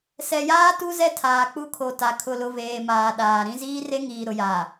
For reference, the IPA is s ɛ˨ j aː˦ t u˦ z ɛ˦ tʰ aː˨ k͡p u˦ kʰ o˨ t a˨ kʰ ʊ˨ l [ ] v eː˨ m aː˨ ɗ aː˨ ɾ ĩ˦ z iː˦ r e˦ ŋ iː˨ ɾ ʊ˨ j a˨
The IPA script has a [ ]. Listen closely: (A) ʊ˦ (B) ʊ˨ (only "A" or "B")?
B